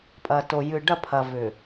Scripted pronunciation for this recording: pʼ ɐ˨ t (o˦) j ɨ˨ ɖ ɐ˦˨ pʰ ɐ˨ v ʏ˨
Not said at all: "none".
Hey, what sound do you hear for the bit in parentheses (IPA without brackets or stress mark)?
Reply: o˨